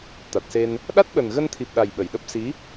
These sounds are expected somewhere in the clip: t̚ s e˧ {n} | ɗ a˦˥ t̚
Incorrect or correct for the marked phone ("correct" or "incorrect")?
correct